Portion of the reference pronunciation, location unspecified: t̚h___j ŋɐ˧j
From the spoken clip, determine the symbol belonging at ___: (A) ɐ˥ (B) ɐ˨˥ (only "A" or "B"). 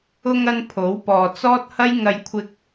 A